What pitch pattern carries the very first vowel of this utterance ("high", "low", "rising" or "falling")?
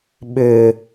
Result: low